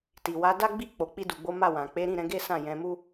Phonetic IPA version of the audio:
t i˨ w a˨˦ d a˦ ɡ͡b i˦˨ k͡p o˨ k͡p i˧ d u˨ ɡ͡b o˨˦ m a˦˨ w ã˨ k͡p e˨˦ ɾ ĩ˦˨ ɾ ɛ̃˨˦ ɡ e˦ s ã˦˨ j ɛ̃˨˦ m u˦

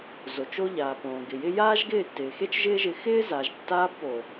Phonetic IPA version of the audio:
z o˨ t͡ʃ o˦ ʎ aː˨ p õː˨ ɡ ɪ˨ j ɪ˦ j aː˦ ʒ ɡ ɪː˦˨ tː ɪː˨ x e˦ t͡ʃ ʒ ɪː˦ ʒ ɪ˧ x ɪː˦ z a˨ ʒ tː aː˧ b p o˨

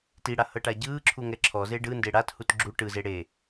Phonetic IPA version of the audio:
t i ɽ a h ɤ ʈ a ɟ ɯː ǁʰ u ŋ ɛ ǁʰ ɔ z e ɖ ɯ n d e ɽ a t h u t ɡ͡ǁ u ʈ ɯ z e ɽ e

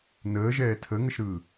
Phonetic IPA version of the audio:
n əː ʒ ɛː tʰ ə ŋ ə ʃ ɾ ɯː

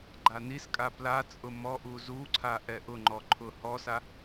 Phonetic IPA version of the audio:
ɡ͡ǃ a n i s kʼ a p l a t͡sʼ ʊ m ɔ ʔ u z u ǀʰ a ʔ ɛ ʔ ʊ ŋ͡ǃ ɔ ǃʰ ʊ h ɔ s a

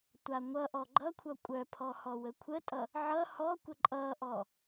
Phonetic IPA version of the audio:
tʷ a ŋʷ ʌ ʔ ɔ ɡ͡ǃ ʌ kʷʰ ʌ kʷʼ œ pʰ ɔ h ɔ w ə kʷʰ ə tʼ ʌ | ʕ ʌ h ɔ kʷ ə ǃʼ ʌ ʔ ɔ

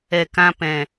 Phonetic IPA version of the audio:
ɛ˨ k ã˧ p ɛ̃˨

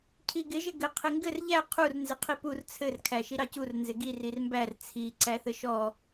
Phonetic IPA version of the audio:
cʰ i ɡ ɪ ʒ ɘ ɡ ɘ qʰ ɪ ŋ ɡ ɘ r ʎ æ qʰ u r n z ɪ qʰ i p u r t͡sʰ ɘ r kʰ æ ʃ i ɾ ɑ c u r n z ɪ ɡ i r i r m b æ r t͡sʰ i ǀ æ θ ɘ ʃ ɔ

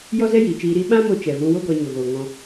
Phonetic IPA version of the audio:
j ɔ˦ z ɛ˦ j iː˨ t͡ʃ iː˧ ɾ i˦ ɓ ã˦ m o˧ t͡ʃ ɛ˨ v ũ˧ w o˦ ɡ ɔ˧ ɲ o˨ ɣ oː˨ ŋ ɔ̃˧

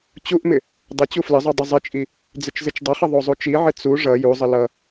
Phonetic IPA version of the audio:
t͡ɕ u ʔ m ɪ | dˤ ə t͡ɕ u f l ɪ zˤ u dˤ ɪ zˤ ɪ t͡ʃʼ i | d͡z ɪ t͡ʃ z ɪ t͡ʃ dˤ ʌ χ ə ðˤ o zˤ u t͡ʃ i ʕ ɪ t͡s u ʐ ʌ j u zˤ ə l ʌ

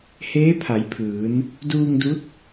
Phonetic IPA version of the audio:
h eː˧˥ pʰ a˩˧ j pʰ ɯː˩˧ n | d uː˧ ŋ d u˧˥ t̚

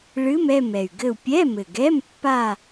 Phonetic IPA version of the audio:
ɭ ɨ˧˥˧ m ɛ˥˧ m ɛ˨˩ y̯ ɡ ɘ˥˧ u̯ pʲ ɛ˧˥˧ m ɘ˨˩ ɡ ɛ˧˥˧ m pː a˥˧

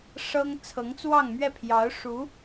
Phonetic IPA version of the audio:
ʂ ɤ˥ ŋ t͡sʰ ɤ˧˥ ŋ t͡s w ɑ˥˧ ŋ m ɥ ɛ˥˩ pʰ j ɑ˧˥ ʊ̯ ʂ u˧˥

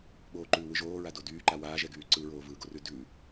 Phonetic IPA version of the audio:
ɓ oː ǃ ʉː w ɯ ʒ oː ɹ a d o d yː ǃ a w aː ʒ ɛ ɡ yː ǀ ɯ ɹ oː v ɯː ɡ o r ʉ d ʉ

